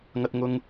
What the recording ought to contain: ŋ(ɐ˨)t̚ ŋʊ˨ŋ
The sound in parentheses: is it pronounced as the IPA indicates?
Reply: yes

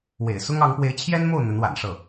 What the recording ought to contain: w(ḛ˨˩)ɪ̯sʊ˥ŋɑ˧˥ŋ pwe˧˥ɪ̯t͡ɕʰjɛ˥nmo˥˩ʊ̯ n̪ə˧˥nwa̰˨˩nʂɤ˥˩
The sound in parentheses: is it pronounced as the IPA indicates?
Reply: yes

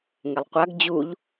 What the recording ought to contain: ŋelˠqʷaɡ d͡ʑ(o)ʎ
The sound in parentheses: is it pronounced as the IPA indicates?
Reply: no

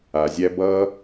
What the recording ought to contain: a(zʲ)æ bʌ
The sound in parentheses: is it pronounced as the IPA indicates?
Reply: yes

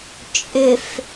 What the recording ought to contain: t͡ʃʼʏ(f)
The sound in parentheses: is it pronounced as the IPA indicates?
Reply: yes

